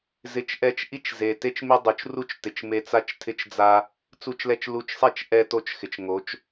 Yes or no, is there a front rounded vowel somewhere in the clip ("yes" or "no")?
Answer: no